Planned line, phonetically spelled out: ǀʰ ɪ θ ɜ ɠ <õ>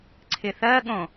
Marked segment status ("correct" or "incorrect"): correct